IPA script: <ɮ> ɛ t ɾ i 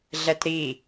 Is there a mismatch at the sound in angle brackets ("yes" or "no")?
no